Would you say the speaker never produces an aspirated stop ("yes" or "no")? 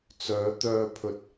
no